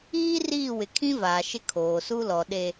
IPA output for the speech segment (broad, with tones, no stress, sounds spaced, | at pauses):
iː˦ r iː˦˨ w ɪ˨ kʰ ĩ˦ v aː˨ ʃ ɪ˦ kʰ oː˨ s u˦ l ɔ˨ ɗ e˨